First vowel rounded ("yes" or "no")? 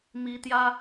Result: no